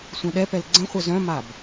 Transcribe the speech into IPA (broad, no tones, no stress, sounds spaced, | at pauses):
sʷ œ̃ ɗ ɛ p ɛ l ɡ͡ǀ ə̃ χʷ œ z œ̃ m a b